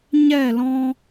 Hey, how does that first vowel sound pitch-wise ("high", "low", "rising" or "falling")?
falling